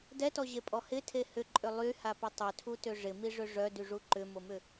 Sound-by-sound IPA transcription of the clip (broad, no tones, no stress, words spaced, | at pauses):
dɛtɔʑepʼɔ hɪtʰe hʏǃʼʏ lˠyhapɪ tˤʏtʰutʏ ʐɪmiʐʏ ʐœdyʐu ǃʏmomʏ